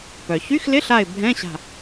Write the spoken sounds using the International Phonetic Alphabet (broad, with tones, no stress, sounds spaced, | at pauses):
p œ˩ ç y˧˥˧ x l ɪ˧˥˧ ɬ a˧˩ ɪ̯ bʱ ɛ̃˧˥˧ ɕ a̤˧˩